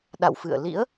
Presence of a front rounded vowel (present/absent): absent